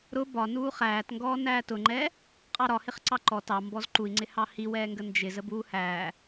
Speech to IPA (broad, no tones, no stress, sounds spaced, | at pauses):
ɾ ʊ b ɒ n uː χ æː t ŋ ɡ ɔː n æː t ʊ ŋ͡ǃ ɛː | qʼ ɑ ɾ ɒ h ɪ χ ǀ ɑ ǃ ɔ t ɑ m b ɔ z ǃ u i̯ ŋ͡ǀ ɪ h ɑ h i w ɛː ŋ ɡ ə n d͡ʒ ɪ z ə b uː h æː